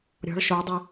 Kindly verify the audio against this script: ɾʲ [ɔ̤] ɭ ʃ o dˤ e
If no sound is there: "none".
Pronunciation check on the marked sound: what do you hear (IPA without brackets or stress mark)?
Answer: ɔ̤